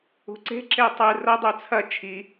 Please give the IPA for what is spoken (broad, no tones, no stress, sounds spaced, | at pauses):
ṳ ǀ e̤ ǁ e tˤ ɨ r ɐ dˤ ʉ t͡sʰ ɐ t͡ʃʰ i